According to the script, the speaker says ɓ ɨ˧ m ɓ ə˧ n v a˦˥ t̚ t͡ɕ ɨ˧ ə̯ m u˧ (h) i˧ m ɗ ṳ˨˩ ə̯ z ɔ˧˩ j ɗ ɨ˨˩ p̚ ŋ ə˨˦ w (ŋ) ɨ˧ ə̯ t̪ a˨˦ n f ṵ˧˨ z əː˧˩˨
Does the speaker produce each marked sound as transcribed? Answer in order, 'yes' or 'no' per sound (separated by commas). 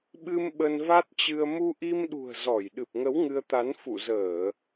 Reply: no, yes